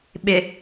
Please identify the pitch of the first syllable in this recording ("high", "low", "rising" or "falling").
low